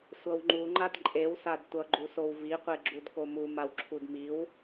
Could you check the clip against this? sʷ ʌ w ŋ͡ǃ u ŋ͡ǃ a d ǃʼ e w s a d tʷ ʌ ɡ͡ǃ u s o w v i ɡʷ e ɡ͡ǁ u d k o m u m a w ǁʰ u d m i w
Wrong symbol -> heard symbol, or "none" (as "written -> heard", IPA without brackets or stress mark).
ɡʷ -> qʷ